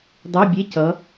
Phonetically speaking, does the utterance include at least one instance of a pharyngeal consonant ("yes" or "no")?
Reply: no